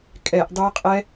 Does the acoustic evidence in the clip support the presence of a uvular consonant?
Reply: yes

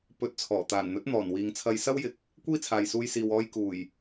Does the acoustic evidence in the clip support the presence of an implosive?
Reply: no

